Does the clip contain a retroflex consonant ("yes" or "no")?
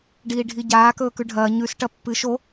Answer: yes